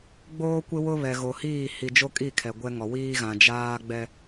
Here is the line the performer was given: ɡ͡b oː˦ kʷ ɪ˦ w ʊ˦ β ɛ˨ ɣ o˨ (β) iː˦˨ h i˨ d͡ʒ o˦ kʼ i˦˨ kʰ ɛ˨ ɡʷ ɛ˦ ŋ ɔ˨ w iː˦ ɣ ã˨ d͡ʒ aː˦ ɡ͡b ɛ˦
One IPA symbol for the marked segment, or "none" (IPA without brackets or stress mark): h